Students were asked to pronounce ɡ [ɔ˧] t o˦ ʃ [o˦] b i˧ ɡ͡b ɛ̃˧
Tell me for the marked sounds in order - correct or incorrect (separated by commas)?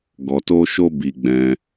correct, correct